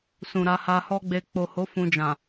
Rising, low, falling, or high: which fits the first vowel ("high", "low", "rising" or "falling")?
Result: low